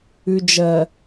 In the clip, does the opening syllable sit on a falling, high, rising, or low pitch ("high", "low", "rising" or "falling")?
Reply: low